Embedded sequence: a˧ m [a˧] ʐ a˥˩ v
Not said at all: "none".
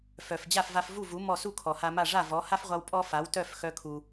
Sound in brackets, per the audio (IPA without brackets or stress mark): a˥˩